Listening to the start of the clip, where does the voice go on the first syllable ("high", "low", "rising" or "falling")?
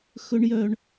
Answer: high